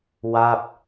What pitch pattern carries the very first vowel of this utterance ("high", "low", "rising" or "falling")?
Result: falling